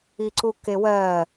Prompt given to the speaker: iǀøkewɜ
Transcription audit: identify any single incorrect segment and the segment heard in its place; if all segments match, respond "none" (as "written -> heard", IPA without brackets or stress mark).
ø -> u